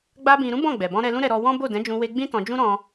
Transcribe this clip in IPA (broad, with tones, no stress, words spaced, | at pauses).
ɡ͡ba˦bĩ˧ ɾũ˦bɔ̃˦˨ɡ͡bɛ˨bɔ̃˧ ɾɛ˧lũ˦ɾɛ˧ ɾɔ˧wɔ̃˦ bo˦˨dɛ̃˨˦d͡ʒũ˧we˧ ɡ͡bĩ˦tɔ̃˧d͡ʒũ˦ ɾɔ̃˧